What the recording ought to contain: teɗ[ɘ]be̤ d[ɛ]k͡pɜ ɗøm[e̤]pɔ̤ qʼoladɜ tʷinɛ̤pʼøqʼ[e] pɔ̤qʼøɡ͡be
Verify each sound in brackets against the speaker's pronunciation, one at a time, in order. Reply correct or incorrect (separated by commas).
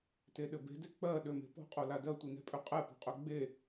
correct, incorrect, correct, incorrect